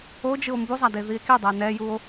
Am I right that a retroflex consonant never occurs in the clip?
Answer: yes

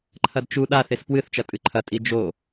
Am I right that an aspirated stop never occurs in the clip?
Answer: no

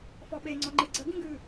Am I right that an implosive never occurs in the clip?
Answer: no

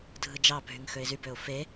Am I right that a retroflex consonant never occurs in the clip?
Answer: yes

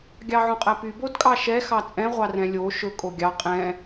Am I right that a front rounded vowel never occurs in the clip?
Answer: no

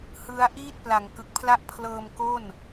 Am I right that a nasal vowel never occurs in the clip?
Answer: yes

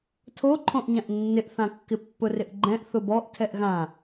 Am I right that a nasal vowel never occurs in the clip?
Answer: no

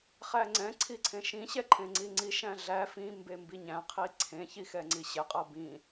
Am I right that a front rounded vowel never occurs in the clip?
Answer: yes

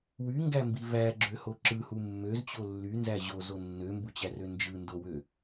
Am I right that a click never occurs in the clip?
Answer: no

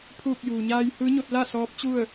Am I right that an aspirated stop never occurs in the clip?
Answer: no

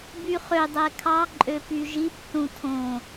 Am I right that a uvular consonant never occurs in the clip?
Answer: no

